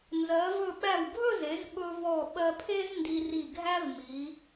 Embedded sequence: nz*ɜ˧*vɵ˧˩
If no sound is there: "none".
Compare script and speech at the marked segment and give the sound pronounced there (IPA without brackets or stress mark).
ɜ˩˧